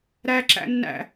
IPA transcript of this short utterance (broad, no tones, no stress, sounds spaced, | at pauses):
ɾ æ ǁ æ̰ nː æ̰